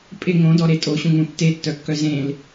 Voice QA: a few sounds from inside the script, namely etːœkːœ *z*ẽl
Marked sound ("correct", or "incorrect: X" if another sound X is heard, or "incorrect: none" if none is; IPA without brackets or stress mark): correct